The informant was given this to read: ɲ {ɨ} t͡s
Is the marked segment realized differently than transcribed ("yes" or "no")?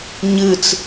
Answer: no